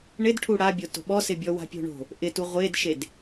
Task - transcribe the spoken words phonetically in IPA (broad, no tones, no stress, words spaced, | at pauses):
ɳɪdʈʰu ɽabʲoto̤ ɓɔsɪbʲɔ wa̤pʲo̤ɳo̤ | ʔɪtu ʁʷedʃed